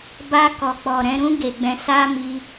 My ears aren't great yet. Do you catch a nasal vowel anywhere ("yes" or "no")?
yes